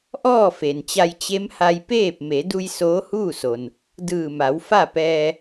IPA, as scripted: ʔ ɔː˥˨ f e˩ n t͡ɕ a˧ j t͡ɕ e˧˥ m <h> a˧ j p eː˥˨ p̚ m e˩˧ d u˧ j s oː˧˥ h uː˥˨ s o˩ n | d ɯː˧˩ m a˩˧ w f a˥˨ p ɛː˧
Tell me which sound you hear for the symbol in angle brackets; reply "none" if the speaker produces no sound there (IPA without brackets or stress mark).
h